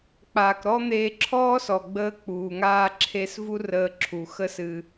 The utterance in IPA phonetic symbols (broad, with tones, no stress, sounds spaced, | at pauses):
k͡p aː˩ k ɾ ɔ˥ n̪ eː˧ ǁʰ ɔː˥ s ɔ˩ ɡ͡b əː˧ k͡p uː˩ ŋ aː˧ ǁʰ e˧ s v u˥ r əː˧ ǁʰ u˩ x ə˥ s ɨ˧